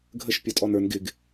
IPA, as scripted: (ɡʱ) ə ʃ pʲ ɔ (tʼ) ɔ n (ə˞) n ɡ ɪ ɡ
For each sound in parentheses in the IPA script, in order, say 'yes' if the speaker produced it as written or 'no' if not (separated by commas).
yes, yes, yes